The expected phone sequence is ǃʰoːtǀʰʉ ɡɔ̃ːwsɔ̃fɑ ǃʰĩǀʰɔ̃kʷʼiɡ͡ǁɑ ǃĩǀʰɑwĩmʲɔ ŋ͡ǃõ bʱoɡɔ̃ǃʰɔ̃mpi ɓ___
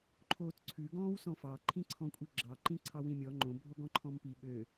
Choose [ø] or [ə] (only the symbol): ø